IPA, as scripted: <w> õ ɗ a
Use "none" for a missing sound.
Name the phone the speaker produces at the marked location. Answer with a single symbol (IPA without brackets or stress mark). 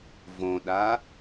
v